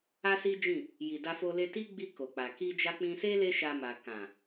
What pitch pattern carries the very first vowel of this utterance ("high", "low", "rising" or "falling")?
high